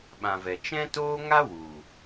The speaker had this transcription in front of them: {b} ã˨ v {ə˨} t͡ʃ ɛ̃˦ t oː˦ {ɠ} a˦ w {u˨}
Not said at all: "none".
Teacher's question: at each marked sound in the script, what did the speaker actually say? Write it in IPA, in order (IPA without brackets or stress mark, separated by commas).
ɓ, ɛ˨, ŋ, u˨